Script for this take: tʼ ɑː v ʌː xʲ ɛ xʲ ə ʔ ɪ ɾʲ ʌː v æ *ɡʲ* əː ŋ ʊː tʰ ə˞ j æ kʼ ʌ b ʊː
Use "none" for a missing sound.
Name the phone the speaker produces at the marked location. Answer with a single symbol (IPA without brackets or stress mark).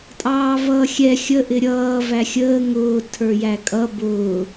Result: xʲ